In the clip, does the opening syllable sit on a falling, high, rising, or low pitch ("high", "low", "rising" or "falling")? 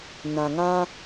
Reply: low